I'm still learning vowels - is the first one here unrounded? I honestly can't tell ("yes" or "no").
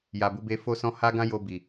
yes